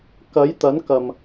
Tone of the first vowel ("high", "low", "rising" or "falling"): rising